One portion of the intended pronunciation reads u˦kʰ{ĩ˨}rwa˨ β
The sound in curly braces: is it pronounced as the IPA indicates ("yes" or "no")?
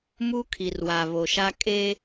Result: no